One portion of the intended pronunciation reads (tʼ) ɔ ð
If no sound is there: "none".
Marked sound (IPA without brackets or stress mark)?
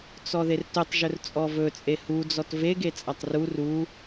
t͡s